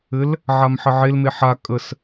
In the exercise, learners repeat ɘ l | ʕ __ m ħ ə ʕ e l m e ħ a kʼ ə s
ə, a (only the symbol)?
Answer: a